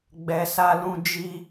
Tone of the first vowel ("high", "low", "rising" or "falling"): low